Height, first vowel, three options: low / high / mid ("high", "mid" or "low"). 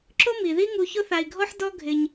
high